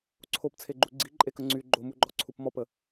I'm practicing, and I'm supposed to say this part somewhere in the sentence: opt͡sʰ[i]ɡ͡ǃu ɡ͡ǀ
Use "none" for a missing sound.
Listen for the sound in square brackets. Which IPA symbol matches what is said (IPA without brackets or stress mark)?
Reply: e